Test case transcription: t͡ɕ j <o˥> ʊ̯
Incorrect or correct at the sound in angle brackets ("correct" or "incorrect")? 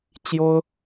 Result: correct